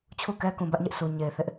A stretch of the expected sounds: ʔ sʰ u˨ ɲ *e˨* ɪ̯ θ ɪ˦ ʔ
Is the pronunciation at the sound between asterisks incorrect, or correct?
correct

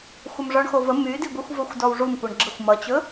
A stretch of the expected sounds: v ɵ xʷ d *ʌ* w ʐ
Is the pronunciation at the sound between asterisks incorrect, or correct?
incorrect: ɔ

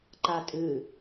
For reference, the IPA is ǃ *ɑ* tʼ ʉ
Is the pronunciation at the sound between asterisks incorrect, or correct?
incorrect: a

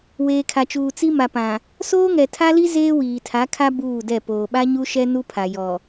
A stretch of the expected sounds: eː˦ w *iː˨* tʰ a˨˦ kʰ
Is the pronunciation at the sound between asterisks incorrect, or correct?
correct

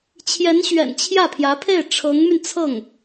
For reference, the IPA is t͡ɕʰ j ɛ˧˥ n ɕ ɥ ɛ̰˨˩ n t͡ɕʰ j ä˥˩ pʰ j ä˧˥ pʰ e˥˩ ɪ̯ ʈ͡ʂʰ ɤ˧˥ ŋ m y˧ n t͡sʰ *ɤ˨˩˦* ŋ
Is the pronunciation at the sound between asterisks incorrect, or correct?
incorrect: ɤ˥˩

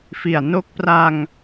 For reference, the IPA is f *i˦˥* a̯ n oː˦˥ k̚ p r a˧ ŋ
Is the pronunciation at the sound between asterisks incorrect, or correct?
incorrect: i˨˩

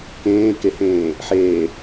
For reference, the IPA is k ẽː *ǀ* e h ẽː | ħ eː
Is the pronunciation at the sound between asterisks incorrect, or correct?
incorrect: k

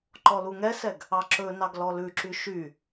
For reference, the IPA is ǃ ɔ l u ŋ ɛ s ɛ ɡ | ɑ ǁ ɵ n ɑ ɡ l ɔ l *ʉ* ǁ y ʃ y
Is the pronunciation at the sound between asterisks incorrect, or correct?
correct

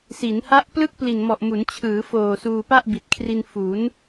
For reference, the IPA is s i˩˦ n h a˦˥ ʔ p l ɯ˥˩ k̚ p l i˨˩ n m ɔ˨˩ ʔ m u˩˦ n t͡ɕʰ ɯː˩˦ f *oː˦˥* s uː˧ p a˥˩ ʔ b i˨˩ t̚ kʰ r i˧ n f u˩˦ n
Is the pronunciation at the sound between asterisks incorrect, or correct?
incorrect: oː˨˩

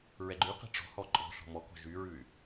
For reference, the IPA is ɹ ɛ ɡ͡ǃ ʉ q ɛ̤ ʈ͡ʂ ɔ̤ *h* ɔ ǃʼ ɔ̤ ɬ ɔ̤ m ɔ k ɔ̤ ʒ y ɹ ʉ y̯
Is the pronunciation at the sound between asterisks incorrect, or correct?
correct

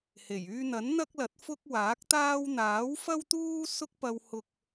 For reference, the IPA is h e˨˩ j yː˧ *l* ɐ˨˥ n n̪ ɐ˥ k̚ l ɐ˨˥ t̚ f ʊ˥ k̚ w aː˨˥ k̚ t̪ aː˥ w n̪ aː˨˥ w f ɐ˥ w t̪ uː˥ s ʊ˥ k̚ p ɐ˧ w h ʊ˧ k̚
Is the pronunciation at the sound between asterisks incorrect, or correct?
incorrect: n̪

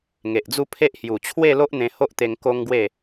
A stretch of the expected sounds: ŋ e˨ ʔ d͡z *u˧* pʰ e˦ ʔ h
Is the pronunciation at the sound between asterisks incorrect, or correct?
incorrect: u˦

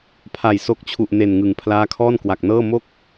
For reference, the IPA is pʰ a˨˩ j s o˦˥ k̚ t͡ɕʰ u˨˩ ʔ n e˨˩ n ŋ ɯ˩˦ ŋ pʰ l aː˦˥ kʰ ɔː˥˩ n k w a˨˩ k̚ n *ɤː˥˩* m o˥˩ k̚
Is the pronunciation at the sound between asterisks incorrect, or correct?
correct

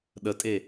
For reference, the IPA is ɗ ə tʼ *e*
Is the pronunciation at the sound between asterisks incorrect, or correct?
correct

